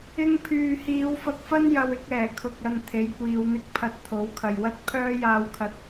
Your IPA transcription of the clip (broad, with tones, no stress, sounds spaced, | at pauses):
ɪ˧ ŋ pʰ yː˨ h iː˨˧ w f ɐ˧ k̚ f ɐ˥ n j ɐ˧ w ɪ˧ k̚ ɛː˨˩ kʰ ʊ˨ k̚ ɐ˨ n t̪ʰ e˨˥ j kʷ iː˨˧ w n̪ ɪ˥ k̚ pʰ ɐ˧ t̚ t̪ʰ o˨˥ w kʰ ɐ˨ j w ɐ˥ t̚ pʰ œː˥ j aː˧ w kʰ ɐ˧ t̚